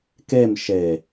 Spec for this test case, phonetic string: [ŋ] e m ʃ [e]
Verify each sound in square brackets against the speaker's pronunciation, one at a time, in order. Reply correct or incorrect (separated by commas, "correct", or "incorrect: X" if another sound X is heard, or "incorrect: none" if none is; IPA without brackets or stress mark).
incorrect: k, correct